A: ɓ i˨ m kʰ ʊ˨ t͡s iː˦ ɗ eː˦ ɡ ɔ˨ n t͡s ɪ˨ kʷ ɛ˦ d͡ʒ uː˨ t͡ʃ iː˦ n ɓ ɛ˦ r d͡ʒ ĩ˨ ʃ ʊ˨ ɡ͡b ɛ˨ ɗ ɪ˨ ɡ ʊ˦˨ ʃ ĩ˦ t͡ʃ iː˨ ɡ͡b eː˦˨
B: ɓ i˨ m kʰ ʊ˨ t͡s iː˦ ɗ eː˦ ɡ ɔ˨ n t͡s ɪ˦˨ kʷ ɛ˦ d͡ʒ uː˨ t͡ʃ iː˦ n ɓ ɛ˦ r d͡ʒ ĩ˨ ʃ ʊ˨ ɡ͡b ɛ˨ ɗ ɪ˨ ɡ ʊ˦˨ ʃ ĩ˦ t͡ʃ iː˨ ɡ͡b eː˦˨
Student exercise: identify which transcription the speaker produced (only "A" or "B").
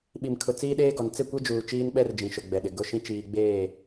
B